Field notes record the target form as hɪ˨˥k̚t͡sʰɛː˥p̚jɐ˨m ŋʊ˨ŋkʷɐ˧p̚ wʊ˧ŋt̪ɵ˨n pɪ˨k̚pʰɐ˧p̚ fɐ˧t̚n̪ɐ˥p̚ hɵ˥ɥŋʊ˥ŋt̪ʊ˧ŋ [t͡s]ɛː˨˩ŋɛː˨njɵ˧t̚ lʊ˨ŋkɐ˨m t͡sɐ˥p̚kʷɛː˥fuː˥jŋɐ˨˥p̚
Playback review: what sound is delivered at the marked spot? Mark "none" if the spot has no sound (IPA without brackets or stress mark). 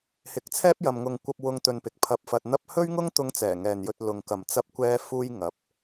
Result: t͡s